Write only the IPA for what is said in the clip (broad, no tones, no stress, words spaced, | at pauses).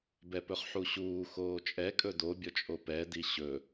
bɛpɵχħuɕuː xoːt͡ʃʼɛ kʼɵdo bʲɔt͡ʃʼopɛ diɕɵ